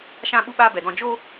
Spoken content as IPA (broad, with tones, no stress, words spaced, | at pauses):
ʃã˦ɓu˦ɓaː˦ bɛ˨dɔ̃˦˨ d͡ʒo˦